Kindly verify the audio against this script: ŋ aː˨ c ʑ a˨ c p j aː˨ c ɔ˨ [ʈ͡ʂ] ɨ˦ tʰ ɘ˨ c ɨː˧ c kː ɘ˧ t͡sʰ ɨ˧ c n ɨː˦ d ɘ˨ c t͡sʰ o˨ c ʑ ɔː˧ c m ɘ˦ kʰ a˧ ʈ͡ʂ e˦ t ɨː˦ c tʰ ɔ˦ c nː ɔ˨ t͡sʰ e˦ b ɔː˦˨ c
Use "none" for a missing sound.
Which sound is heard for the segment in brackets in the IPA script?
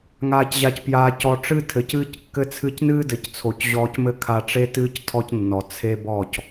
ʈ͡ʂ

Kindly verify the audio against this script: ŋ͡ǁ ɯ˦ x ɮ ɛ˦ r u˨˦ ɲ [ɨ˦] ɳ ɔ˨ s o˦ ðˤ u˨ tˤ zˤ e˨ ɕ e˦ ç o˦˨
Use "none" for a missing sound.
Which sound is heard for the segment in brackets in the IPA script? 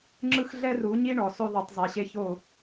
i˦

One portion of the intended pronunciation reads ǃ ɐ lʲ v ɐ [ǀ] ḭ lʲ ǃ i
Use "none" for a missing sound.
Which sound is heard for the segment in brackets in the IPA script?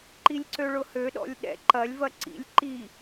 ǀ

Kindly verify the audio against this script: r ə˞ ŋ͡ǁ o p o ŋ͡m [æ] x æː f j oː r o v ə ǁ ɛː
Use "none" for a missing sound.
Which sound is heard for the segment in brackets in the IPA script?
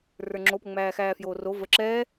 æː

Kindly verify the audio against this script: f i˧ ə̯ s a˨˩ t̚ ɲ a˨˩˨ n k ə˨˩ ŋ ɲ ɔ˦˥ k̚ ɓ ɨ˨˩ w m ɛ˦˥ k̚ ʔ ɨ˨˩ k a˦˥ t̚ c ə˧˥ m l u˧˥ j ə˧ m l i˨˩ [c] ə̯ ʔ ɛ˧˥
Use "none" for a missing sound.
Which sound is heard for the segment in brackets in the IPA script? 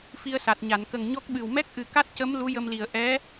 none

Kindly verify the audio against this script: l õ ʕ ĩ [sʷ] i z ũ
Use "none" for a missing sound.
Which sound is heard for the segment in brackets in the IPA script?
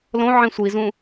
sʷ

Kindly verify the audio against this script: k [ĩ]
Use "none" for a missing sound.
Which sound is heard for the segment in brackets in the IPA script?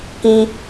ĩ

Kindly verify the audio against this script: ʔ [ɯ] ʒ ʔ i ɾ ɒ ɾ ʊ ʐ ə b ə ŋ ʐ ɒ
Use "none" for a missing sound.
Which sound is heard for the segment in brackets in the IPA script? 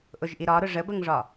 ʊ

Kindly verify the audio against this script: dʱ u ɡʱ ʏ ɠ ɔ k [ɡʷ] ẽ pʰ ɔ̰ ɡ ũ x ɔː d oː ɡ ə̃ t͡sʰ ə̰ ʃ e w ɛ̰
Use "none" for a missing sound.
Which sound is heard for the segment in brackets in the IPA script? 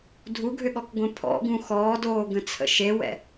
ɡʷ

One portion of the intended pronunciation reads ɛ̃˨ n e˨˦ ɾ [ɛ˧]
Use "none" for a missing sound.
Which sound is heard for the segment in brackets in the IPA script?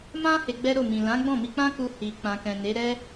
ɛ˦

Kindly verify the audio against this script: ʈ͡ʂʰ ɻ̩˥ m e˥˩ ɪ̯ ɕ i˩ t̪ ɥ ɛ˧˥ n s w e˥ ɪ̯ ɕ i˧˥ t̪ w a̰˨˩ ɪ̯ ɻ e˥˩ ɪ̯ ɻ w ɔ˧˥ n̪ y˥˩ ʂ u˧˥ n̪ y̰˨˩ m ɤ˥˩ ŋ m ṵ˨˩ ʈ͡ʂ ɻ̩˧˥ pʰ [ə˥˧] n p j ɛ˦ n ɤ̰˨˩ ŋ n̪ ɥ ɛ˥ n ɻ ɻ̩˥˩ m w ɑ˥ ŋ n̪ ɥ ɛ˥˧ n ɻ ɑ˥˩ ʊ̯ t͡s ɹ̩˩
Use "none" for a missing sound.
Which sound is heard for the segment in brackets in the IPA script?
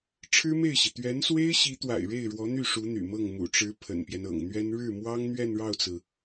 ə̰˨˩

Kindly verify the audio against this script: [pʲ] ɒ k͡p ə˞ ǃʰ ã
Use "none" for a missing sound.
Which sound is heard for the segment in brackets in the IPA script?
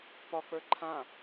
p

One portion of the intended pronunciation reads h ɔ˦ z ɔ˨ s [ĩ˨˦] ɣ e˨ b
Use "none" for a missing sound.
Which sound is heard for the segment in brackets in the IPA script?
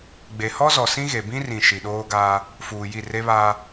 ĩ˦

